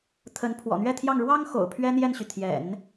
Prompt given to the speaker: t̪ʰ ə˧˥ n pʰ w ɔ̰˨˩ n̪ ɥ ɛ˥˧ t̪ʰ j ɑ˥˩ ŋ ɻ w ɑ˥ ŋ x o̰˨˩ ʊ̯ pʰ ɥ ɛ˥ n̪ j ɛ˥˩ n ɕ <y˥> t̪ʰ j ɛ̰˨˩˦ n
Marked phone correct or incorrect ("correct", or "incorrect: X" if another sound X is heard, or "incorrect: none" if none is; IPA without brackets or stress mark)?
incorrect: y˩